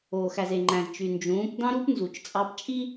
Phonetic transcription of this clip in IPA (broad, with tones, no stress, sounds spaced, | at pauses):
oː˨ x æ˨ z e˨ ŋ͡ǃ æ̃˨ z t͡ʃ y˨ n d͡ʒ ũː˨˦ p d ɑ̃˦ ɾ uː˦ p n z u˨ t͡ʃ t͡sʼ ɑ˧ p t͡ʃʼ i˦